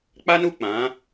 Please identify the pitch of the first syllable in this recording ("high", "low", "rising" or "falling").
high